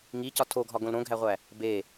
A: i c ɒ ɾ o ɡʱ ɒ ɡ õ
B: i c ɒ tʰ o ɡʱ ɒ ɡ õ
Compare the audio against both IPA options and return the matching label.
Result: B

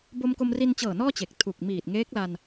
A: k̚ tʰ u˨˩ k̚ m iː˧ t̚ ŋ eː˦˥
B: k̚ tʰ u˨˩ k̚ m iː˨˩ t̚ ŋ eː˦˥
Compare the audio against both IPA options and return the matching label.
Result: B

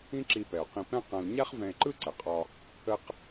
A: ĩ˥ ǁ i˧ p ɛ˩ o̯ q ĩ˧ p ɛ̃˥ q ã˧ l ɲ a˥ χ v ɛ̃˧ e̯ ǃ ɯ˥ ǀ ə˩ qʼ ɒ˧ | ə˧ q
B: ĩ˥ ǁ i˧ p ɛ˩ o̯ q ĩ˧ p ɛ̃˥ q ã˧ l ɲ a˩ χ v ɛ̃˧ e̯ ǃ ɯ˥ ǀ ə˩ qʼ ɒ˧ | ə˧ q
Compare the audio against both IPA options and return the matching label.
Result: A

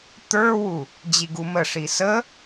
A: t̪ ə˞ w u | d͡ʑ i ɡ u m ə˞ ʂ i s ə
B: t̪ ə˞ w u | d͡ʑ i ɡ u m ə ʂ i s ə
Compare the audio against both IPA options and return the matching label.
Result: B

